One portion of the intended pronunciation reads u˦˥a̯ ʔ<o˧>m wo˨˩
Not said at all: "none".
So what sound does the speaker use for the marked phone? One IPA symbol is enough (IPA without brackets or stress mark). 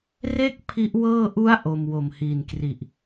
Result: o˧